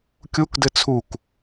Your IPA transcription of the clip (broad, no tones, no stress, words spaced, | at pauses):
kʲukdɘ t͡sʰuk